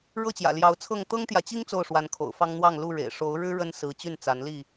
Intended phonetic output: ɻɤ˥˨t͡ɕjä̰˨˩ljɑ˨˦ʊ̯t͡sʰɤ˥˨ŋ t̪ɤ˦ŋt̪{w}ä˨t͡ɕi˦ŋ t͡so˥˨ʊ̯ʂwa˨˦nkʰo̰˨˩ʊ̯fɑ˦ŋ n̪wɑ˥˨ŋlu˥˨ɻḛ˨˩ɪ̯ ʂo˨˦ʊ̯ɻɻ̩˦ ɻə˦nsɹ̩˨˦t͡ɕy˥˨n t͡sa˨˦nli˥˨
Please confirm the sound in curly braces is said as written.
no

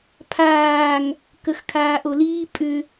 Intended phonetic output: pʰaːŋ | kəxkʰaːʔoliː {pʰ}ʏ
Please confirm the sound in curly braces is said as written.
no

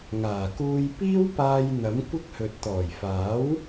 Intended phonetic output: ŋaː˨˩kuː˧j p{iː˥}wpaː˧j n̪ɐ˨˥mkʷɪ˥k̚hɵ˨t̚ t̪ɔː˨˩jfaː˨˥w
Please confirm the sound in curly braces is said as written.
yes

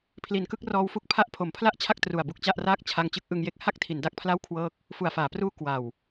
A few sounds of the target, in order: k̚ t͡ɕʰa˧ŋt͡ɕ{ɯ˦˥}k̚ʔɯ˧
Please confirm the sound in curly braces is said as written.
yes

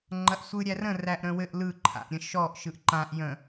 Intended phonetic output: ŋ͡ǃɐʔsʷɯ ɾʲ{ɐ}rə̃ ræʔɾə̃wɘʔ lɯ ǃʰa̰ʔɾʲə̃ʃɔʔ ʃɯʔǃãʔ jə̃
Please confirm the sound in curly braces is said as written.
no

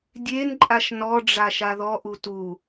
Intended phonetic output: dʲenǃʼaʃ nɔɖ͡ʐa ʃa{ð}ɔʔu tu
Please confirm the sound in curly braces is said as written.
yes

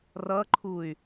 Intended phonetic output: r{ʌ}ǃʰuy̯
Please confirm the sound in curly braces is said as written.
yes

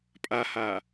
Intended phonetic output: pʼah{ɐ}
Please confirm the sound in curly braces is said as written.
no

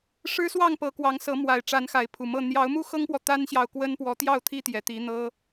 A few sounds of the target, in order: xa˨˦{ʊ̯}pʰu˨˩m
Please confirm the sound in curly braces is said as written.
no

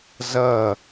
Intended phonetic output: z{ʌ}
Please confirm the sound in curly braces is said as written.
yes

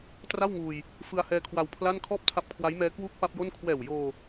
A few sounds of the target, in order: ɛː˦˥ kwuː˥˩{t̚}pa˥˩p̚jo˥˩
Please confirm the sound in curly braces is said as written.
no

